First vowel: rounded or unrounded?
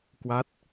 unrounded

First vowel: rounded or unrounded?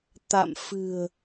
unrounded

